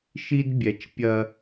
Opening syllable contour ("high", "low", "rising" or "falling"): high